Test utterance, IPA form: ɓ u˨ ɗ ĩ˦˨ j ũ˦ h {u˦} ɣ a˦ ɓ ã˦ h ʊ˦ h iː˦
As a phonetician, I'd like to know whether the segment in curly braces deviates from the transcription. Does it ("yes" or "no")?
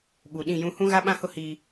yes